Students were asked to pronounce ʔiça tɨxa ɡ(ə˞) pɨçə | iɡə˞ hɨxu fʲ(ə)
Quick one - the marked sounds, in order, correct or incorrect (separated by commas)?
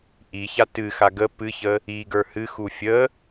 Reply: incorrect, correct